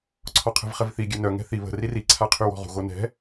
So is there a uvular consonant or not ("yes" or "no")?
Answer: yes